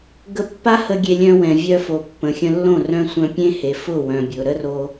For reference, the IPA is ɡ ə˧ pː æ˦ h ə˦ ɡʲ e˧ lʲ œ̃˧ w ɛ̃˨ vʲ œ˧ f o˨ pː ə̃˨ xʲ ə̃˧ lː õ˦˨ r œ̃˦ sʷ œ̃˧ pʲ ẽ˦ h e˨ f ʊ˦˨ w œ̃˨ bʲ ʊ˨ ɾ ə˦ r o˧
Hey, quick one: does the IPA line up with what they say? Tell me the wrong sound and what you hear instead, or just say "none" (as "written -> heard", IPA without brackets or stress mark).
æ˦ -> a˦